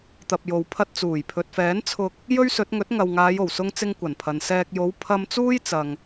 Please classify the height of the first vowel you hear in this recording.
low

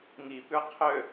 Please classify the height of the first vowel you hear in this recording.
high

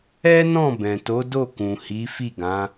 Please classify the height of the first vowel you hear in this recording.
mid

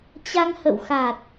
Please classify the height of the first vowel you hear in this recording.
low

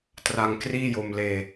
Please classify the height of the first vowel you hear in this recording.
low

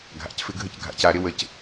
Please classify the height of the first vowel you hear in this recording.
low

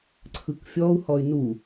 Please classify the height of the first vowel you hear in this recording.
high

